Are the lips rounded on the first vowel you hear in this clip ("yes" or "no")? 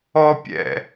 yes